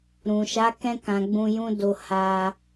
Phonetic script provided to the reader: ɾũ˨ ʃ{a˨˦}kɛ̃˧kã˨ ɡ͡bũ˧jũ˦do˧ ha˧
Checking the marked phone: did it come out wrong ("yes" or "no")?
no